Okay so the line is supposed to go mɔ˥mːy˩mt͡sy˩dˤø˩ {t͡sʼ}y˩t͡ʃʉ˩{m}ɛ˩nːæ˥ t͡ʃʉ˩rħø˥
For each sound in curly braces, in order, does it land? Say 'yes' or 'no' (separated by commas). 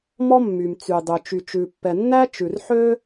no, no